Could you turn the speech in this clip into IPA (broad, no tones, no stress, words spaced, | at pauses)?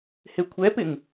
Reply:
hekʷʰɛpɪŋ